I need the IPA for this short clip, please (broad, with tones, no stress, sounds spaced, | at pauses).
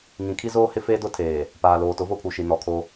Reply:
ŋ ĩ˨ kʰ i˦ z oː˦ h ɪ˦ f eː˦ d ʊ˦ tʰ eː˨ | p aː˨ l oː˨ t ʊ˨˦ v o˦ pʰ u˨ ʃ i˨ n ɔ˨ kʰ o˦